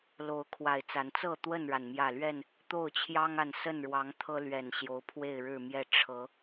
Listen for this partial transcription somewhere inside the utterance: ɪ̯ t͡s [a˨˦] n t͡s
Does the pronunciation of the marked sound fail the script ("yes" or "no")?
no